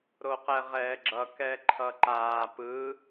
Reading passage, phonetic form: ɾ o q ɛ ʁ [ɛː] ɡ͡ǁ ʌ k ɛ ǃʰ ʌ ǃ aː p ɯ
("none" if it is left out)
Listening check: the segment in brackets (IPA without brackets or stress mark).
ɛː